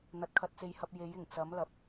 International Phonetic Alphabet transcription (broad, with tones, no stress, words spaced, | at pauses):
n̪ɐ˨t̚kʰɐ˧t̚ t͡se˨jhɐ˧p̚ je˨˥jɪ˨˩ŋ t͡sɐ˨˥mlɐ˨p̚